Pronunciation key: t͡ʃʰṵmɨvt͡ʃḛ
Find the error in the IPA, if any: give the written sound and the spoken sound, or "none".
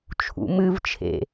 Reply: t͡ʃ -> t͡ʃʰ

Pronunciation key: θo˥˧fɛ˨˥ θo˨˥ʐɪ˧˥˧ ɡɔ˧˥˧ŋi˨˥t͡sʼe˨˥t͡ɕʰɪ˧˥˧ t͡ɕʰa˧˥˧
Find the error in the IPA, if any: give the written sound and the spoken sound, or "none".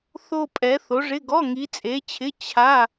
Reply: f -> pʼ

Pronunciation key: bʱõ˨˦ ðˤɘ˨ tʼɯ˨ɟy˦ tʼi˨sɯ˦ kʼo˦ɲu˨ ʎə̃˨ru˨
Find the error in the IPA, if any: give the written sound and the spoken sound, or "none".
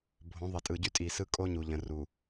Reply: none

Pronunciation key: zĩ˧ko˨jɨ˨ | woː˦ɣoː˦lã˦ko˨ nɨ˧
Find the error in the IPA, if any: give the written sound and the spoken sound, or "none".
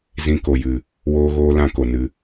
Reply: none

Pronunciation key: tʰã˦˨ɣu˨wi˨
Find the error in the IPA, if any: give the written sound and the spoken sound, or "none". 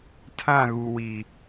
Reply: none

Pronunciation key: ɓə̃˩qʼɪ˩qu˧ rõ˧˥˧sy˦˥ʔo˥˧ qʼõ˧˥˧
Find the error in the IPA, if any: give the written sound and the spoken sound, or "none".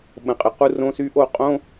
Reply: none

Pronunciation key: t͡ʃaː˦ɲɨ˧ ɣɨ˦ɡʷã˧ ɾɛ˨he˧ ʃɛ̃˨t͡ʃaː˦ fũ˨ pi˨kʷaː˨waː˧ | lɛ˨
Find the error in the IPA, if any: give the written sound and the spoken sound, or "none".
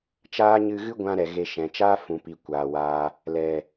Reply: h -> ɣ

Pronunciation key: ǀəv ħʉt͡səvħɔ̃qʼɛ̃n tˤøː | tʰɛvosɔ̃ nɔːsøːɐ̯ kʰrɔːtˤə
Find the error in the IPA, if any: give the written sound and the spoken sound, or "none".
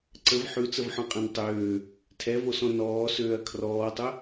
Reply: none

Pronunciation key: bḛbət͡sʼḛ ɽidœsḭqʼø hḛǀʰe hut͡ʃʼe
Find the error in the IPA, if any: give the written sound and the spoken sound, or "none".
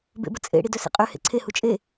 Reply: none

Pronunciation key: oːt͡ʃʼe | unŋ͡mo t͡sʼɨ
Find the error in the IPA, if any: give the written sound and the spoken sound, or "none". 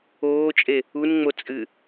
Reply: none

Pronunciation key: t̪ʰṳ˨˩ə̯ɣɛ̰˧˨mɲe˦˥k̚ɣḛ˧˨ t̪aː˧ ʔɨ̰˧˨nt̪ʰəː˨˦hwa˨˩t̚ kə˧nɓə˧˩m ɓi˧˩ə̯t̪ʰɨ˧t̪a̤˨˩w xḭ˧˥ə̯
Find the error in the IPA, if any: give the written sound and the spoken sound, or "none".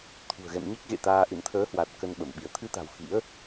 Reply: none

